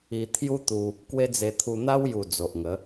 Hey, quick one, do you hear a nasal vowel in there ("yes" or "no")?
no